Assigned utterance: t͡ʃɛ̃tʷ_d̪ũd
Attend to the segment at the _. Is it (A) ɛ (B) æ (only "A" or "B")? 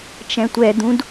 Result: A